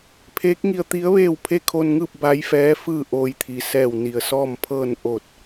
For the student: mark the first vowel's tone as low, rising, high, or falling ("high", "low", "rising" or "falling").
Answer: rising